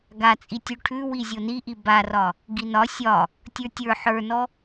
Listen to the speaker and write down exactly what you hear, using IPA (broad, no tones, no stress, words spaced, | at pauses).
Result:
ɡat͡sʼi tʲʉʈʰʉwi zʲoniʔi barɒ | ɡinɒ sʲɒ | tʲə˞tʲə˞ ħə˞nɔ